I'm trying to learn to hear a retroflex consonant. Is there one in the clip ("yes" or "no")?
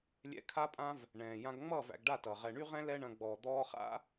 yes